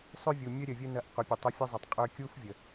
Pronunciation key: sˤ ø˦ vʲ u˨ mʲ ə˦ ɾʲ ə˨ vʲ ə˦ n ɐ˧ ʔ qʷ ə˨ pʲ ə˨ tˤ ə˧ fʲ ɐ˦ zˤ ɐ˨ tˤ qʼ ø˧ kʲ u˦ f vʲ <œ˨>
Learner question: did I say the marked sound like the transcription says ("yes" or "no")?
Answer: no